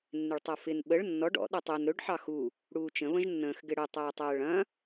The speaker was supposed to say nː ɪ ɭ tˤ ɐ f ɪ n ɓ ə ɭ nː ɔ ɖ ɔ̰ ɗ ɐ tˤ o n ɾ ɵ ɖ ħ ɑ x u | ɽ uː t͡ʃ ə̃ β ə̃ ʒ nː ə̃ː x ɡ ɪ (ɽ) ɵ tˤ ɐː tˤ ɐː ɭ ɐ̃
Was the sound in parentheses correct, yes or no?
yes